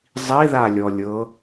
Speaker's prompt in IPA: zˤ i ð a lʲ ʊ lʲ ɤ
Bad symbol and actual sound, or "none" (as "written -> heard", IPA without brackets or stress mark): ʊ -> ɔ